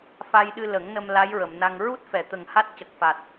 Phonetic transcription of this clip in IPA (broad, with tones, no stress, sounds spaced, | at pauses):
f a˧ j ɗ ɨ˧ l ə˨˩˦ ŋ n ə˧ m l a˧˥ j ɹ ə˨˩˨ m n a˧ ŋ ɹ u˦˥ t̚ f ɛ˨˩˨ t̪ ə˨˩ ŋ h a˦˥ t̚ c ə˨˩ k̚ f a˨˩ t̚